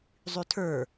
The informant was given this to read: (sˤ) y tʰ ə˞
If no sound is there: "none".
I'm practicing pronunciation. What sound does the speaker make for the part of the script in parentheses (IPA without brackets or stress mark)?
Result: zˤ